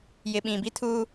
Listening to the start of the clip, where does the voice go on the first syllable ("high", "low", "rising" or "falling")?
low